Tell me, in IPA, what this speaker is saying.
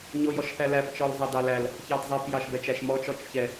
ɲojɔʃθælæp t͡ʃɔlzˤɑdɑlæl | çɑdzˤɛp jɑʃbɛt͡ʃæʃmɔt͡ʃ ɔt͡ʃçɛ

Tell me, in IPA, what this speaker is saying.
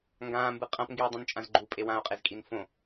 ŋɡãːmbɯ qʼãpŋɡiːdˤũnt͡ʃʼãz ɡ͡ǃupʼe wão̯qʼezkʼin fõ

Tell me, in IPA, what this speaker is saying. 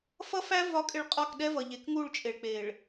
fʌ˦fæ˦ vɒ˨˦kʼɪ˨ɭ qʼɒ˦˨kɗɛ˦vʌ˨ ʎe˨kŋu˦˨ɭt͡ʃʼe˨ɭ k͡pe˨ɭ

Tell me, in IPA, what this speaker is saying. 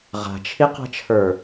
ʁa̤t͡ʃʰiqa̤t͡ʃʰə˞

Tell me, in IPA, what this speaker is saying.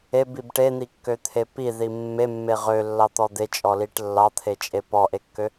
ebib ʈen̪ikːøt̪ʰe piði mːemːe ʁølːɑt̪ɔ d̪et͡ʃʼɔliʈ lːɑt̪ʰet͡ʃʼe pɔʔekːø

